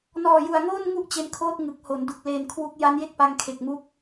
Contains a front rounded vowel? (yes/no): no